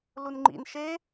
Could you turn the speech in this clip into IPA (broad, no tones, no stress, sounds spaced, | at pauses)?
l u n ŋ͡ǃ ḭ n ʃ e